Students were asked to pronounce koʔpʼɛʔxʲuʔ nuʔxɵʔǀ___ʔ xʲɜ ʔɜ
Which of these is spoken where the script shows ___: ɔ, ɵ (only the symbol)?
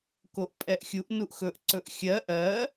ɵ